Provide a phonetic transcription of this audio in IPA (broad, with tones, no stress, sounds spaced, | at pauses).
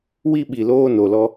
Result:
w i˦ ɓ i˨ l oː˦ n o˨ l ɔ˦